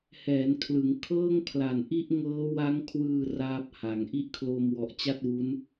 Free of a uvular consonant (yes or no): yes